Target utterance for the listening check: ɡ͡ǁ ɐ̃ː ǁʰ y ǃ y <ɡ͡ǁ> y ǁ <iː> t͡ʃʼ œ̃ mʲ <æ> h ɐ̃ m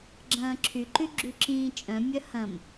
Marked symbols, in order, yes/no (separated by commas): yes, no, no